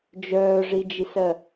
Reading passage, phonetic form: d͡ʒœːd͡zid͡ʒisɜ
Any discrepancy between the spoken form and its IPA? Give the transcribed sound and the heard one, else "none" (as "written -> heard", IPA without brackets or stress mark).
d͡z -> ʐ